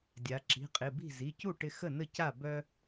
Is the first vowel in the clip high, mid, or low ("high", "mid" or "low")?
low